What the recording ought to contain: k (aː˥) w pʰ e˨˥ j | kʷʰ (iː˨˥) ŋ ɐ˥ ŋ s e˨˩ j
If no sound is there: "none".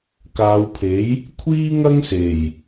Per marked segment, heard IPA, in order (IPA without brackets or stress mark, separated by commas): aː˨˧, iː˥